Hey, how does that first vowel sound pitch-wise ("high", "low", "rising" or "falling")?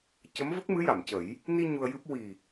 rising